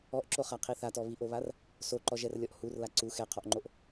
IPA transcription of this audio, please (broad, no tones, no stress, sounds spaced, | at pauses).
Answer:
ɔ ʔ ǁ o χ a qʰ i θ a t ɔ β i ʔ o β a r | s o ǃ ɔ ʒ ɛ r lʲ ɔ ʔ h u r l a ǀ u x ɛ qʰ ɔ ʔ ŋ͡ǃ o ʔ